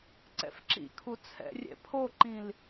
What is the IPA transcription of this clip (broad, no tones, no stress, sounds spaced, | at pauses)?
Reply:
ǀ ɛ̰ f ǁ ḭ kʰ u t͡sʰ ɛ̰ rʲ ɛ̰ pʰ o ǃ ĩ l